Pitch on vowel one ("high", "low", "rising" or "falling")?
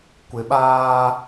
low